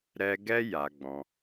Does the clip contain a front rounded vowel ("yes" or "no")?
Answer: no